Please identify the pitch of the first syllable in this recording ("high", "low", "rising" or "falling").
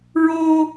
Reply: high